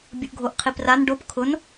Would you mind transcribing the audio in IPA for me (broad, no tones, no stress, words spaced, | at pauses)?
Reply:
bʲʊʔɡʱoʔqʰipran ɖop kʰʊn